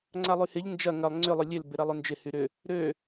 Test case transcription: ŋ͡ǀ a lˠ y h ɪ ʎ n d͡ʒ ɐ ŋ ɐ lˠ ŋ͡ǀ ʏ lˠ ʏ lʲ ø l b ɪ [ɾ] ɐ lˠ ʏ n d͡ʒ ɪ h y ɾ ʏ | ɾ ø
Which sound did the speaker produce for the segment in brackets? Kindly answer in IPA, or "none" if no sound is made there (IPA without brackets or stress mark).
ɾ